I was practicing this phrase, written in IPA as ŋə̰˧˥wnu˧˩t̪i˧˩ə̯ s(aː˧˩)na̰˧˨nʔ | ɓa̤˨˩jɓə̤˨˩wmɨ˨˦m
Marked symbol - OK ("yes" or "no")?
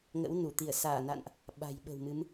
yes